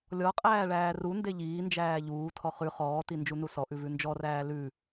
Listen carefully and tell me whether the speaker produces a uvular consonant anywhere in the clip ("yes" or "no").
yes